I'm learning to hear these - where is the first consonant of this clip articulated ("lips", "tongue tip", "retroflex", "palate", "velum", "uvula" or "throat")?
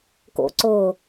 velum